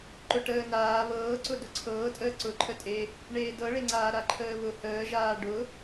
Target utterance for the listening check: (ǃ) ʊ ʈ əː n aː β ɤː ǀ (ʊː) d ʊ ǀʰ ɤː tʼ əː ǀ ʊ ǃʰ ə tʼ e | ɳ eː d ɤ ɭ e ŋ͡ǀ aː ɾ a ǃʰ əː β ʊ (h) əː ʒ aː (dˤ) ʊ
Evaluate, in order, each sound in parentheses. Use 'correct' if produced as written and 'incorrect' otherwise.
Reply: correct, incorrect, correct, incorrect

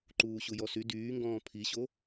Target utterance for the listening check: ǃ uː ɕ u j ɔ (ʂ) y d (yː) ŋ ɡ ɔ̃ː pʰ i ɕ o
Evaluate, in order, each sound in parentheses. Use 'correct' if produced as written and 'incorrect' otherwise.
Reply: incorrect, correct

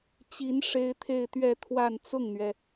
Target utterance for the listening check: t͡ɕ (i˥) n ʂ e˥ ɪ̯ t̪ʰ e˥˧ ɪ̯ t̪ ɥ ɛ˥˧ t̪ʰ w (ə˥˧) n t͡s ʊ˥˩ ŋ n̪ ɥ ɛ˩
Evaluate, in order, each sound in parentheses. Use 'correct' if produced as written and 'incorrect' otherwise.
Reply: incorrect, incorrect

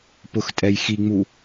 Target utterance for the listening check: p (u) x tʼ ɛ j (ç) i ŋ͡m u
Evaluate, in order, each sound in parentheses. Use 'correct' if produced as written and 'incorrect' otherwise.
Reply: incorrect, incorrect

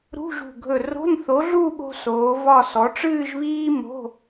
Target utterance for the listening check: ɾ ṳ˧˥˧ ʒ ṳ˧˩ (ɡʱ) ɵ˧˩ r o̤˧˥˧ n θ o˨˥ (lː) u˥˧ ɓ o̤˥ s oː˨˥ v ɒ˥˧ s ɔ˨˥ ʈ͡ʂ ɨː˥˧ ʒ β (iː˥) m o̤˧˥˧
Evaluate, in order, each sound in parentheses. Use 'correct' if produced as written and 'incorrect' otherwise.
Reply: correct, incorrect, correct

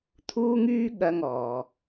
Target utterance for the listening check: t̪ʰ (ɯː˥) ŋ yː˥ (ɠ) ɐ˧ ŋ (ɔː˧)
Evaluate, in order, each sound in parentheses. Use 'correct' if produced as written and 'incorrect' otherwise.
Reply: incorrect, correct, incorrect

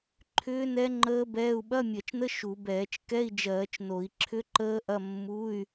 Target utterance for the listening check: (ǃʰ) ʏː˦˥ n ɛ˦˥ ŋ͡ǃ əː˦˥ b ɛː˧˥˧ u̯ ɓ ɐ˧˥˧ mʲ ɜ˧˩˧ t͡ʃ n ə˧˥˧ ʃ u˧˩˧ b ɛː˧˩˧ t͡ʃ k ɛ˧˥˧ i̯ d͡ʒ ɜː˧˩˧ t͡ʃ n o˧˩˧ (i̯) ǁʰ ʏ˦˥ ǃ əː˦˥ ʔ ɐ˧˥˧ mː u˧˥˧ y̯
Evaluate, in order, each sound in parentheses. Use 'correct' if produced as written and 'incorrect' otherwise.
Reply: correct, correct

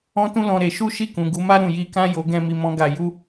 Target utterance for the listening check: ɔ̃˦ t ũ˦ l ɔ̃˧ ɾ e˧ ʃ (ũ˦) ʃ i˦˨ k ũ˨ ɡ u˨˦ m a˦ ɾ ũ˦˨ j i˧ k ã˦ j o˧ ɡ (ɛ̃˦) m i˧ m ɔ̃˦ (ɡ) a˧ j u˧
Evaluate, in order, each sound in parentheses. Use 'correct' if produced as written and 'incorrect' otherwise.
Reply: incorrect, correct, correct

